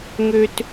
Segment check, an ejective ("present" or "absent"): absent